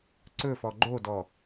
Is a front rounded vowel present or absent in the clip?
absent